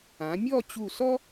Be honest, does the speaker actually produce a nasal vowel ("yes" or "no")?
yes